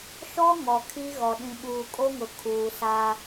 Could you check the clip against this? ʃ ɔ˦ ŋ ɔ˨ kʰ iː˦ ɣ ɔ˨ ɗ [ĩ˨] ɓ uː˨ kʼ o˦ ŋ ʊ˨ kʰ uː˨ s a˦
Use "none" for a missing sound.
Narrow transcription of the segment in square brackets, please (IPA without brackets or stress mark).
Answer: ĩ˨